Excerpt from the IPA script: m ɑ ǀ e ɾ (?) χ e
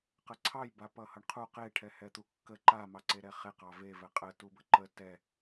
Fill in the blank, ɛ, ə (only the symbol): ɛ